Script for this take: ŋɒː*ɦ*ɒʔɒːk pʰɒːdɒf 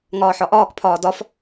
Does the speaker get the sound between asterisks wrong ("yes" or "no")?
yes